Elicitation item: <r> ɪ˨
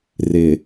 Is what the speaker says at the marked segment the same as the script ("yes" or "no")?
yes